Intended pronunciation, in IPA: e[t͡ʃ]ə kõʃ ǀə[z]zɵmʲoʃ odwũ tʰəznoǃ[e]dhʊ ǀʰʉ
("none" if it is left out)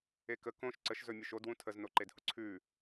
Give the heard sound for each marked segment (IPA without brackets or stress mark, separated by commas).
k, ʃ, e